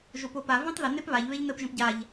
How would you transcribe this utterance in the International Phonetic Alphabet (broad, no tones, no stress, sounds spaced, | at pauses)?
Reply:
ʒ o p o p a v ĩ tˤ ð ə n e p β a ʎ β e ʎ n ə p ʒ ə̃ p ɟ a ʎ